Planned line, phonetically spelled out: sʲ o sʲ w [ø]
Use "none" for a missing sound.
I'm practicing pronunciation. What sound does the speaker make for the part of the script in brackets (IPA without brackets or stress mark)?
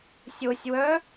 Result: œ